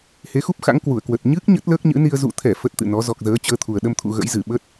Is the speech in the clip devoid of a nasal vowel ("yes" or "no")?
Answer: yes